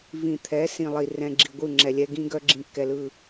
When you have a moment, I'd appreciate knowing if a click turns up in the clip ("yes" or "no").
yes